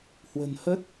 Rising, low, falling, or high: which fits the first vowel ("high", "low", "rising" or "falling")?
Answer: low